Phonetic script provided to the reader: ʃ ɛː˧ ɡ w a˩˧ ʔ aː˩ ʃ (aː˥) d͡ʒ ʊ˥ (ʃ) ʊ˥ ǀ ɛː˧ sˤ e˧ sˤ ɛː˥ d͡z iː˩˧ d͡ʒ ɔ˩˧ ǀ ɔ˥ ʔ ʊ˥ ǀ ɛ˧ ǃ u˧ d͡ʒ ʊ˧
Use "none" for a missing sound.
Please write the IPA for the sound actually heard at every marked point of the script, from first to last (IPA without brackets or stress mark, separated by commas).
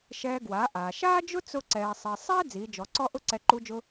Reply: aː˥, t͡s